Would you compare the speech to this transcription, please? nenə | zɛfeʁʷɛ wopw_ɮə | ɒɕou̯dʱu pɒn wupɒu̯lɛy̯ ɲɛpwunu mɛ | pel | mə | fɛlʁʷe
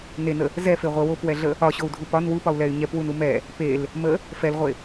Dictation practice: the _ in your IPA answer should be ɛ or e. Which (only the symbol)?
ɛ